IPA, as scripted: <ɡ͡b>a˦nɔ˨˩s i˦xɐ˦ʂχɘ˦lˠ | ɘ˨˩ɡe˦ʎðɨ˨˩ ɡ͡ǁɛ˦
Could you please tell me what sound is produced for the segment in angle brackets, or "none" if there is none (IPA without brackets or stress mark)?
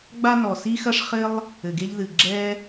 ɡ͡b